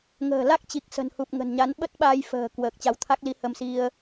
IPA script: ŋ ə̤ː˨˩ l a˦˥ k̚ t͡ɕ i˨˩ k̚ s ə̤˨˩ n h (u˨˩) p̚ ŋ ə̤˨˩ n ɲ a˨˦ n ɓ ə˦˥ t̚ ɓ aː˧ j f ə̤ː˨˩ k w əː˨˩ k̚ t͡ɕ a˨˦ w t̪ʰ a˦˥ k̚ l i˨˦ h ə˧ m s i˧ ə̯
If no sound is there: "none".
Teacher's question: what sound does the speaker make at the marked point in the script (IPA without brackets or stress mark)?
u˨˩